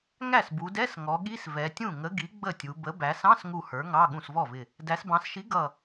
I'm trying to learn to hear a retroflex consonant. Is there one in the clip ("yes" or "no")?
no